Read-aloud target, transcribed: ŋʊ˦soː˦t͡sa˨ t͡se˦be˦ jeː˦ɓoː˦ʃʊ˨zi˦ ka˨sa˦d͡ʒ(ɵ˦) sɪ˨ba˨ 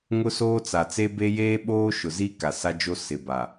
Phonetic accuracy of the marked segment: incorrect: o˦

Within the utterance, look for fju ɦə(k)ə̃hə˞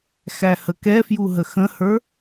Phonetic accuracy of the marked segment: incorrect: x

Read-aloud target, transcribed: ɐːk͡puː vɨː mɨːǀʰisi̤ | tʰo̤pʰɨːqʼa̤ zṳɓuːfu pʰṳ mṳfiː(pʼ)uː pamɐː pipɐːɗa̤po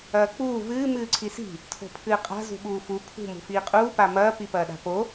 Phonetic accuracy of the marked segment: incorrect: qʼ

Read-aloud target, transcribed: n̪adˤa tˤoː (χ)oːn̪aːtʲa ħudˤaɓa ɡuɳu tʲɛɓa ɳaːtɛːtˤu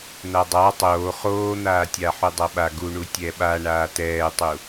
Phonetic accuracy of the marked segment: correct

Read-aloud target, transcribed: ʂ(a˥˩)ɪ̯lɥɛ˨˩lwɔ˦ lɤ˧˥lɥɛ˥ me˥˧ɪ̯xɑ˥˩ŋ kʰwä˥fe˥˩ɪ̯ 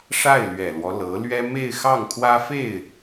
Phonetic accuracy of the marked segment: correct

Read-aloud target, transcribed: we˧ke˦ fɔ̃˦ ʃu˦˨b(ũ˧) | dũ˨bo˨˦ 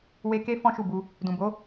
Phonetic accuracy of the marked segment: incorrect: u˧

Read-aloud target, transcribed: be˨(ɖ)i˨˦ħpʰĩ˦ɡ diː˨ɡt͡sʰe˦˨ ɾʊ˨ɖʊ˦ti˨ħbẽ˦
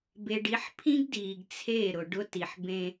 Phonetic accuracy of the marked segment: correct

